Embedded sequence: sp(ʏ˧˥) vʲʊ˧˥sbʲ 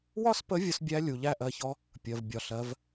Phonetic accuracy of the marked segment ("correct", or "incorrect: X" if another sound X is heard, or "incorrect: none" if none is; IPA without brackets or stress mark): incorrect: ə˧˥